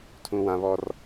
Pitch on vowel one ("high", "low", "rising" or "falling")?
high